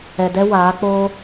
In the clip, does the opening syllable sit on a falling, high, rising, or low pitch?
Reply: low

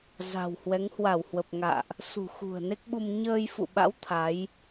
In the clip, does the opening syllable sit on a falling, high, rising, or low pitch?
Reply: low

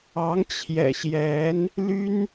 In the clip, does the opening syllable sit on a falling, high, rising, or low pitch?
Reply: rising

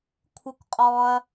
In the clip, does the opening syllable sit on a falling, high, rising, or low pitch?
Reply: high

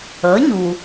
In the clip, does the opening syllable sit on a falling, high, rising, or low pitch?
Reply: rising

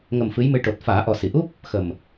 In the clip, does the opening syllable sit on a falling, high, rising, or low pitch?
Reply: low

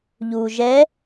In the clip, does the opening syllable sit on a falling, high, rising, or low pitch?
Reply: low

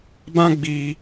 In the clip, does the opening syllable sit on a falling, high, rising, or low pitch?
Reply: high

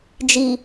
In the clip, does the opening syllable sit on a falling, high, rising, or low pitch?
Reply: low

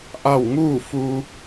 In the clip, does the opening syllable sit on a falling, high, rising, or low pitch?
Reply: falling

